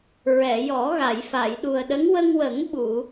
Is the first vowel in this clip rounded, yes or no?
no